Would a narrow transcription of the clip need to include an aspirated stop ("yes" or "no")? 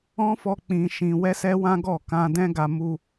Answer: no